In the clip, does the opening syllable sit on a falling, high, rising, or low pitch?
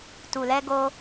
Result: low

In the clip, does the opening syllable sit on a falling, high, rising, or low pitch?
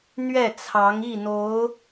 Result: falling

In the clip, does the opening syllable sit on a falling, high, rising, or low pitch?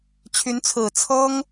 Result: rising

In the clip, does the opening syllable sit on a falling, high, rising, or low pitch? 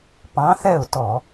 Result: rising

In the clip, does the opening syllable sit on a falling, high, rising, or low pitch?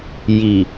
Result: low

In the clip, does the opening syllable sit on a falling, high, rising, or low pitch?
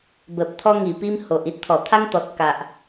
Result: low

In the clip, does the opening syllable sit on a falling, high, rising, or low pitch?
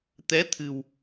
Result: rising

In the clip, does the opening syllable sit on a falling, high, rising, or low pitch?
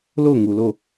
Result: falling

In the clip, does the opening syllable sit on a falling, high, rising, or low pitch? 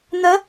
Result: rising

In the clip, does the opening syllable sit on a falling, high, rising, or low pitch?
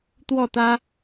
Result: falling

